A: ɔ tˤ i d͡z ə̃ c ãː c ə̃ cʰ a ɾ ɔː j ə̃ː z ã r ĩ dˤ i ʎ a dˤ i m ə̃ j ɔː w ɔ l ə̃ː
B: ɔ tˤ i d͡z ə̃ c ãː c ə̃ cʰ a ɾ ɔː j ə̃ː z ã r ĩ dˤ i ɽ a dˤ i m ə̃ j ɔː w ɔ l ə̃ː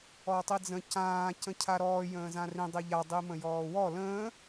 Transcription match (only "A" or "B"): A